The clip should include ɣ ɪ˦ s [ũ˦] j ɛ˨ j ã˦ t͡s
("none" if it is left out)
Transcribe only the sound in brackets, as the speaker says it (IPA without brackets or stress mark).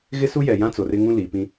u˦